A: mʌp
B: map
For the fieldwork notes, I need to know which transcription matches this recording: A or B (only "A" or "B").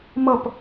A